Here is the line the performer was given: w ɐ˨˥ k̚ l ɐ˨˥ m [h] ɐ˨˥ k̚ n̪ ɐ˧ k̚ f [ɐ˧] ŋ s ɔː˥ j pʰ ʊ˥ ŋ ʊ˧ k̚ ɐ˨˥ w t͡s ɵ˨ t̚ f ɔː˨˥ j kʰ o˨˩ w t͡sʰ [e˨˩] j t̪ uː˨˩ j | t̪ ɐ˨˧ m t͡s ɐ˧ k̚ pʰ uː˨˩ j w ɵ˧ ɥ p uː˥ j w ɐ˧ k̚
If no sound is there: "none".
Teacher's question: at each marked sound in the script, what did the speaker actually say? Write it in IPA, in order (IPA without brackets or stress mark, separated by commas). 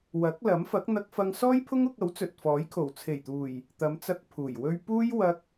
f, ɐ˧, e˨˩